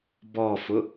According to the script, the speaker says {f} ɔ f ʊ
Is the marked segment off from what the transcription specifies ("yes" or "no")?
yes